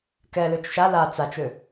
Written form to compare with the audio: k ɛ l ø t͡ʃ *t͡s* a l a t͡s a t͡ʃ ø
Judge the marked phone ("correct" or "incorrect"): incorrect